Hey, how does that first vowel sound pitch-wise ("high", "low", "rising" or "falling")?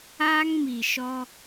high